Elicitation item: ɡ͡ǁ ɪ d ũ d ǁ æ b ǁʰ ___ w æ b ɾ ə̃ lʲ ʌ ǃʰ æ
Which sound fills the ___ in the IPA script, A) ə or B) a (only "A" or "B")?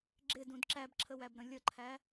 A